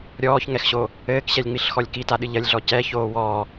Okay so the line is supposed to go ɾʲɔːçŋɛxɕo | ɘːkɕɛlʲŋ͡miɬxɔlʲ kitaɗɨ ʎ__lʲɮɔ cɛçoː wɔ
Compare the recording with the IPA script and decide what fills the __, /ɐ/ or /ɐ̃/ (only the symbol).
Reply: ɐ